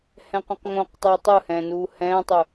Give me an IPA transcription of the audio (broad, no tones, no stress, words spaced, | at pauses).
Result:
hɛ̃qʷɛ̃qŋõq tˤeːtˤɯhɛ̃ːnuː hɛ̃ːtˤu